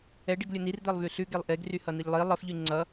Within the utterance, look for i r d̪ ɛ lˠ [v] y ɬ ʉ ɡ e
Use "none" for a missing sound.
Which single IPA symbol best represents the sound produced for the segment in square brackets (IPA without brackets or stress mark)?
v